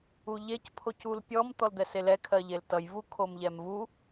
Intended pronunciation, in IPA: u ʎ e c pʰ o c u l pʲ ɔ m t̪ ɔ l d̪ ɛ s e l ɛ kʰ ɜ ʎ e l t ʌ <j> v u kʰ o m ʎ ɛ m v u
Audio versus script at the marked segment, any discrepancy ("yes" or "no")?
no